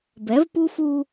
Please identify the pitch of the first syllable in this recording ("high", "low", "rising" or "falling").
rising